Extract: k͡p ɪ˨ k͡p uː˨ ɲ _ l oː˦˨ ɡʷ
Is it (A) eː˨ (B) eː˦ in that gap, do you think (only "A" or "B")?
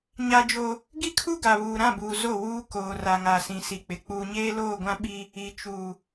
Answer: B